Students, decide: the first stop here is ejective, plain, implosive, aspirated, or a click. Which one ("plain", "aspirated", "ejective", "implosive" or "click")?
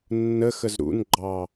click